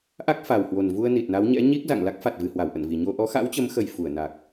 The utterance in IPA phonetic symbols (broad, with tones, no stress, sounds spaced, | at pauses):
ʔ a˦˥ k̚ f a˨˩ w h w o˨˩ n v u˧ ə̯ n i˨˩ t̚ n a˨˦ w ɲ ɛ̰˧˥ ɲ i˦˥ k̚ z a̰˧˨ ŋ l a˦˥ k̚ f a˨˩ t̚ v ɨ˨˩ h w a˧˩ w ʔ ə̰˧˨ n v i˨˩ ɲ o˧ ʔ ɔ˨˦ x a̰˧˥ w t͡ɕ ə˨˦ m x ə˨˩ j f u˧˩ ə̯ n a˨˩ k̚